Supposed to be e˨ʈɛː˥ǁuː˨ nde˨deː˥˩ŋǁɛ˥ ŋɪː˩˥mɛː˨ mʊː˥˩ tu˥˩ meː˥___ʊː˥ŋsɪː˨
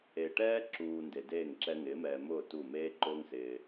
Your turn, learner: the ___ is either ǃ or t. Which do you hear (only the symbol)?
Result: ǃ